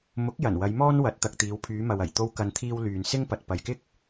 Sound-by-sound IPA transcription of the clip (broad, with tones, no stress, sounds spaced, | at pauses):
m ʊ˨˥ k̚ j ɐ˨˩ n w ɐ˨˧ j m ɔː˥ n w ɐ˨˥ t̚ t̪ ɐ˨ k̚ t̪ iː˨˧ w pʰ yː˨˧ m ɐ˨ w ɐ˨˩ j t̪ o˧ w k ɐ˨ n t̪ʰ iː˧ w l yː˨ n s ɪ˥ ŋ p ɐ˨ t̚ p ɐ˨ j k ɪ˥ k̚